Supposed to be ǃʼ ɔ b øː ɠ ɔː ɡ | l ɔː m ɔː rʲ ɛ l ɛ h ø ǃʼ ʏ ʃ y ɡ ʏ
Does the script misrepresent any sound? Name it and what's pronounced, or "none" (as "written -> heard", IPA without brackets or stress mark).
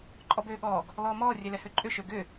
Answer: y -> ø